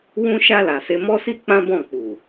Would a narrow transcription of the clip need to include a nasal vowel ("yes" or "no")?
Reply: yes